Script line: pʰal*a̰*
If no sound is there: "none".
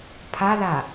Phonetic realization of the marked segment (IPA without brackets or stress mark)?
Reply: a